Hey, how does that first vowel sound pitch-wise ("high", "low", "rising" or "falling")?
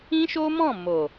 high